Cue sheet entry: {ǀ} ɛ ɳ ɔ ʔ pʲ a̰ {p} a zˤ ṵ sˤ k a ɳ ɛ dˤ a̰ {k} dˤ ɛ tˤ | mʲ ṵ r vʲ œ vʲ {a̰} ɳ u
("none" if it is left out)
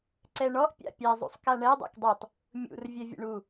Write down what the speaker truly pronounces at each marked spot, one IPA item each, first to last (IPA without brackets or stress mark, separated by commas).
ǀ, pʲ, k, ə̰